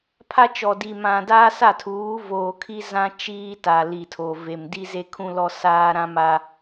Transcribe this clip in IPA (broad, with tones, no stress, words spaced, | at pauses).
pʰa˦t͡ʃɔ˨di˨ mã˨ daː˦sa˦˨tʰuː˨˦ voː˨kʰi˦ zã˦ t͡ʃiː˦ta˨ li˨tʰo˨ ve˨mdi˦ze˦ kʰũ˦lɔ˦ saː˦ɾã˦ma˦